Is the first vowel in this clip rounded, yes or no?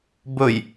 yes